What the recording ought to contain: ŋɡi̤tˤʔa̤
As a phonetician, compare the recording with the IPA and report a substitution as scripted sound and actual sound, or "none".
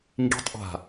none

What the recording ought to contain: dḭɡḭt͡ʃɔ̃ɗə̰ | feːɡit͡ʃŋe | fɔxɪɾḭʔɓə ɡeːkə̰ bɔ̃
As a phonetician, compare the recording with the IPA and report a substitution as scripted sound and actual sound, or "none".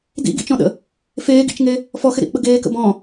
i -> ḭ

